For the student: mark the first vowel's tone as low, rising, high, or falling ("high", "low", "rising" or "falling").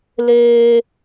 high